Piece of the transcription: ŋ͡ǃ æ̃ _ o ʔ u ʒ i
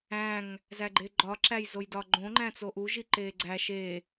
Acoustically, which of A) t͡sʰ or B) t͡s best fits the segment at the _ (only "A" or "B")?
B